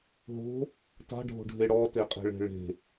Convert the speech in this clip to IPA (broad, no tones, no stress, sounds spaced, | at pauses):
ɦ o̤ | t a̤ ɖʱ o̤ ɖʱ e ɽ ɔ t e qʼ e̤ ɭ e̤ ɭ e̤